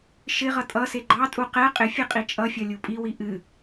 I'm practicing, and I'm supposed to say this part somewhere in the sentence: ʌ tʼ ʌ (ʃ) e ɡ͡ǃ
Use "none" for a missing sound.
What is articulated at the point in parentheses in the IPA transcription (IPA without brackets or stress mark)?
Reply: s